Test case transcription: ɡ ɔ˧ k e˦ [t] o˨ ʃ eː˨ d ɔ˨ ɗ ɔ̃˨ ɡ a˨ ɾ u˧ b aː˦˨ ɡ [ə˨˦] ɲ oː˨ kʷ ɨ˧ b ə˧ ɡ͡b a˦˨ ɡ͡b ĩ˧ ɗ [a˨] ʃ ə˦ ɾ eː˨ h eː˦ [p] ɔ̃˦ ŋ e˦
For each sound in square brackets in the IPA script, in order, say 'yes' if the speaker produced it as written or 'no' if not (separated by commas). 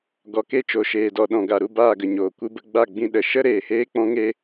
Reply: no, no, no, no